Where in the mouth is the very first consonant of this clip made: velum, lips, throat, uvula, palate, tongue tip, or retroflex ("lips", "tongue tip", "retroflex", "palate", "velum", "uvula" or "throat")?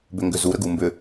lips